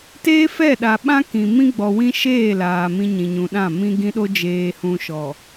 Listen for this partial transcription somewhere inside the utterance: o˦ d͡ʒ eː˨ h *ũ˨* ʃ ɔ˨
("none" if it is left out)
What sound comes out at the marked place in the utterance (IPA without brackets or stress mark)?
ũ˨